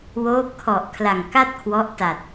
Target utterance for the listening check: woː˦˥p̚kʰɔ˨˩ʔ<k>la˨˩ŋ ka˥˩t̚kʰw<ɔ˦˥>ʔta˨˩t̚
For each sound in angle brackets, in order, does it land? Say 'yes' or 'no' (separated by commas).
no, yes